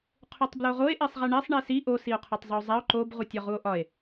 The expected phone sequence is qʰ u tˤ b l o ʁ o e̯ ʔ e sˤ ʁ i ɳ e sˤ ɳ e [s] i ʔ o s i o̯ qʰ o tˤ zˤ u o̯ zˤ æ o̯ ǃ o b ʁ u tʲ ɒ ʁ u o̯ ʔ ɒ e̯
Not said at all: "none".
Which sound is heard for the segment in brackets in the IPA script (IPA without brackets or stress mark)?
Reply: s